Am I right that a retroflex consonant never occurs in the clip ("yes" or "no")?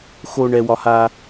no